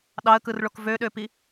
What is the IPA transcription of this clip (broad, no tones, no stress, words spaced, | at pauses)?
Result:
ɗɑə̯kɯrɭok vøɗøpi